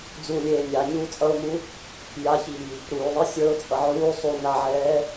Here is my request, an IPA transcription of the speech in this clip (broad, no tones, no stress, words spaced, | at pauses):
d͡zulʲeː nʲa ɲuːt͡sʼʌʊ̯mu | jaçiː | ɾuːðˤi sʲə˞ʊ̯t͡sʼʌ ʕuː sˤu naʕɛː